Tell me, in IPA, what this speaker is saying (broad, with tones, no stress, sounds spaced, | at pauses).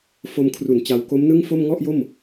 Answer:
f o˧ m kʰ r u˩˦ n t͡ɕ a˧ w k o˦˥ m n ɯ˥˩ ŋ f o˥˩ m ŋ ɔ˥˩ ʔ j o˥˩ m